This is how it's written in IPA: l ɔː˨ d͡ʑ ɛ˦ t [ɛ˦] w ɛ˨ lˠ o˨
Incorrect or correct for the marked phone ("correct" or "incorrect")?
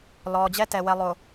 incorrect